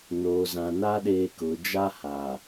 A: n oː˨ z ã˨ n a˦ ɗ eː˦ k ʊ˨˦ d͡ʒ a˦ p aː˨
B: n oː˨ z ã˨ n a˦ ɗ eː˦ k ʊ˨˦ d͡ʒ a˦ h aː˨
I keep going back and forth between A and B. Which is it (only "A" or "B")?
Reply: B